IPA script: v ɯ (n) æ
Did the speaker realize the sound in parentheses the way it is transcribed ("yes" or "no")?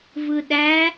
no